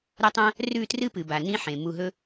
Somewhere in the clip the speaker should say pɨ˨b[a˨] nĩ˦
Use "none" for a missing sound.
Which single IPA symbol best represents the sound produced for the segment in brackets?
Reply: a˨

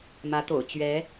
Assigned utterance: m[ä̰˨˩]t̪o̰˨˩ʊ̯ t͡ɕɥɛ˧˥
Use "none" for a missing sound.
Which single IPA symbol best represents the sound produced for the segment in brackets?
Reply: ä˧˥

